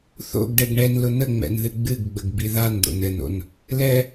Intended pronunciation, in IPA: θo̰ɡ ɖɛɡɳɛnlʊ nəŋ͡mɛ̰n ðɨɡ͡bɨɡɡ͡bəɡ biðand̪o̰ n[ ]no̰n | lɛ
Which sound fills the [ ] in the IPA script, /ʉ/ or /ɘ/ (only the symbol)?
ɘ